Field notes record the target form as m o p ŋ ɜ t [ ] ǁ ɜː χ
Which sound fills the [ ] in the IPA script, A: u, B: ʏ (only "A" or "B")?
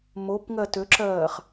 B